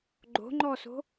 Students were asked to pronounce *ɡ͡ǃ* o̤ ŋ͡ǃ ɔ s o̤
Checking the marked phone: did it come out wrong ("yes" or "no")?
no